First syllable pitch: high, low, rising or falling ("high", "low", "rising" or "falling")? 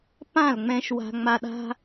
falling